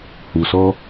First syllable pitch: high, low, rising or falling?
low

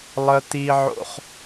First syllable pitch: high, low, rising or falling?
high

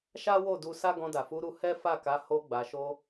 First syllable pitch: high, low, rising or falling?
high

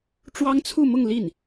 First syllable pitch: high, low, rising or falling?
high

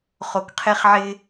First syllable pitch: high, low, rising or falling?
low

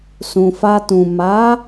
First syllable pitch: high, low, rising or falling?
low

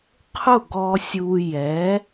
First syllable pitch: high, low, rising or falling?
falling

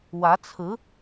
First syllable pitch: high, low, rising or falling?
rising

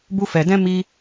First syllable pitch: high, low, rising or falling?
high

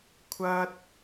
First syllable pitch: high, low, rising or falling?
high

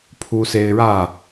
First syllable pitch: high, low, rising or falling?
high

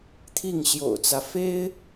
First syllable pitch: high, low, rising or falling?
falling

